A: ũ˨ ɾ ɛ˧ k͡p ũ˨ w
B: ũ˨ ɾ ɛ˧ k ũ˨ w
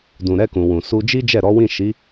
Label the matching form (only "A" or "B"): B